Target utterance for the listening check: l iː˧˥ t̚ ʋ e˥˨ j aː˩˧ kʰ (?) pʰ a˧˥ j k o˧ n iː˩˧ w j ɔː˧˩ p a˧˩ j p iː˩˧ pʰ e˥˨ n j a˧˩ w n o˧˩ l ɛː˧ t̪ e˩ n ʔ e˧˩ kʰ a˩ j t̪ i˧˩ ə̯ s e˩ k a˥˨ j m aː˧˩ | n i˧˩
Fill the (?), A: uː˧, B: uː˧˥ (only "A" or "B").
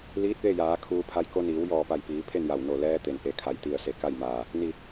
A